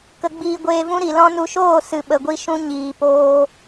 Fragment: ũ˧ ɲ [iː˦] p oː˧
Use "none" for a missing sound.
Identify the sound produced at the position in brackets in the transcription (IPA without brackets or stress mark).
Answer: iː˨